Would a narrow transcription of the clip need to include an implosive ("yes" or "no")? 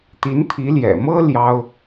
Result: no